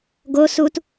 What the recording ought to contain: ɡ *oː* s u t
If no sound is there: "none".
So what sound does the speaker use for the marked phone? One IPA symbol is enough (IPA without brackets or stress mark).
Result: o